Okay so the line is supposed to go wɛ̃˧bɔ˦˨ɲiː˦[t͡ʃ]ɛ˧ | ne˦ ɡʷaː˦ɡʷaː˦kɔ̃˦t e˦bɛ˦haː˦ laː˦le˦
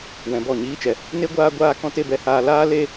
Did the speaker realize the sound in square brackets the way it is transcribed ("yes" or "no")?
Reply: yes